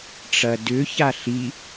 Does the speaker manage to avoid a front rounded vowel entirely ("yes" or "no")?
no